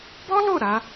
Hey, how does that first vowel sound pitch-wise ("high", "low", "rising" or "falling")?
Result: high